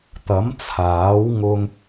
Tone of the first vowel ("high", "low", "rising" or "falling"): rising